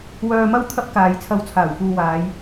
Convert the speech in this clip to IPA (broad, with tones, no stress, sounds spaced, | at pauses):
w œː˧ m ɐ˥ w t̪ʰ ɐ˥ p̚ k aː˨ j t͡sʰ ɐ˧ w t͡sʰ aː˨˩ w f uː˨ w aː˨˧ j